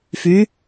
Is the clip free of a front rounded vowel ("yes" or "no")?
no